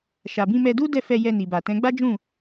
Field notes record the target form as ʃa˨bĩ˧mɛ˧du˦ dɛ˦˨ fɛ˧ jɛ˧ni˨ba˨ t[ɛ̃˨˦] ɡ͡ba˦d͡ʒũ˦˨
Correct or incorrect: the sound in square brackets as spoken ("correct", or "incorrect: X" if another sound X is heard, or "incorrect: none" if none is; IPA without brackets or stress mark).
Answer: correct